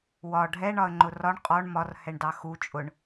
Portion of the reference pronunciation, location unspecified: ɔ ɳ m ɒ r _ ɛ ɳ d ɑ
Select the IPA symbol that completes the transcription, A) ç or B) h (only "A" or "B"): B